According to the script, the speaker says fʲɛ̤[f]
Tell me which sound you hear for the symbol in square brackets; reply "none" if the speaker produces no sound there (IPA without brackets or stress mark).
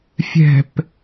p